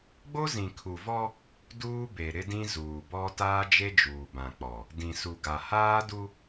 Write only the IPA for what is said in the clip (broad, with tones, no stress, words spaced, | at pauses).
ɡ͡bo˦zĩ˨kʰu˨vɔ˦ | duː˦be˨ ɾɪ˦dĩ˦zuː˨bɔ˦ taː˦d͡ʒe˦d͡ʒuː˨bã˨ k͡pɔ˨ | dĩ˨su˨ɡa˨ haː˦du˦